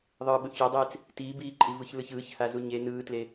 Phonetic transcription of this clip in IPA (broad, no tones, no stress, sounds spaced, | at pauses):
ðˤ ɯː ɓ ɯ ʔ ç o dˤ eː t͡s | t iː b iː ǃʼ i v ɯ ç l ɯ ç ɯː ç h a z u ɲ e n ɯː t l e